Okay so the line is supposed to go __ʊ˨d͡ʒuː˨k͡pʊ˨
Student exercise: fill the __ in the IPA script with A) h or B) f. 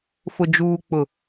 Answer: B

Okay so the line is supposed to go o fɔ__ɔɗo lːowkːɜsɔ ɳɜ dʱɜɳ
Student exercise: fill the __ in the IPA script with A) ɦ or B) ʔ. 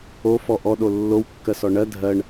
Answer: B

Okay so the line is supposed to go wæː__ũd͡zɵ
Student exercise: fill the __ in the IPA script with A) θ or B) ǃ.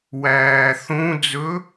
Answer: A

